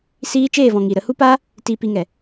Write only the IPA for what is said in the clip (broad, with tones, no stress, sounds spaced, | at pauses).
s iː˦ t͡ʃ eː˦˨ v ɔ̃˨ ŋ iː˨ ɾ ə˨˦ h u˦ p aː˦ | t iː˧ p i˧ ŋ ɛ˨